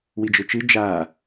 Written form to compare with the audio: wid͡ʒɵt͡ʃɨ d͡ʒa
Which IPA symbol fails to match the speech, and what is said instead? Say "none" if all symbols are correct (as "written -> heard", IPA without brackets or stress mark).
none